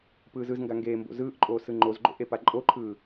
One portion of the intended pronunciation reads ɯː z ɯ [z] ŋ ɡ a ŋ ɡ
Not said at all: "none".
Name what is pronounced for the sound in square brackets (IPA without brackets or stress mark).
z